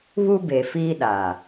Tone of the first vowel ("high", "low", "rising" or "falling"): high